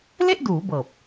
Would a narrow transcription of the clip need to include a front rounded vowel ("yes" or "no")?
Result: no